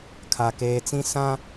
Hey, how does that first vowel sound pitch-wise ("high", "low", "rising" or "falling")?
low